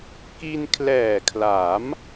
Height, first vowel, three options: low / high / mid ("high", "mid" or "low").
high